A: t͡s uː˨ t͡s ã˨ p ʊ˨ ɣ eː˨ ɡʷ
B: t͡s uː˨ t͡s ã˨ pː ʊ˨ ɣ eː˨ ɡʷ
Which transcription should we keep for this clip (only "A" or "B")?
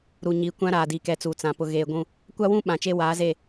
A